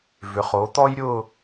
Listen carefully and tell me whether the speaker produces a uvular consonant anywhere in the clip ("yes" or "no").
yes